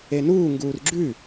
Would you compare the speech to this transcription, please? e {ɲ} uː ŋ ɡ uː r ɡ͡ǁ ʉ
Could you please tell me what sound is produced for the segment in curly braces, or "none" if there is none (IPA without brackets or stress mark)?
n